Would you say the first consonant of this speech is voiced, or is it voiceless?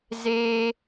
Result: voiced